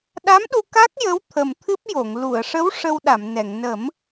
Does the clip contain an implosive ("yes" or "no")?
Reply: yes